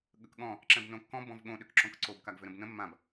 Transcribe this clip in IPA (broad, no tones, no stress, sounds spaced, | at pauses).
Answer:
ɠ ə k ɠ ɔ̃ | ǁ ɛ̃ b n õ kː ɔ̃ b ɔ̃ v ɠ õ ɗ ʏ k ǁ õ k ǀ o b k a ɡ v ʏ ɾ ə̃ b n ə̃ mː ã b